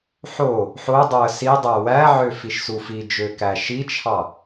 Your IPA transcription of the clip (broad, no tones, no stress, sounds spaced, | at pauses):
ħ o | ħ o dˤ o ə̯ s i dˤ æ w æ ʕ ø f i ʃ s u f i d͡ʒ ø k æ ʃ i t͡ʃʰ ɑ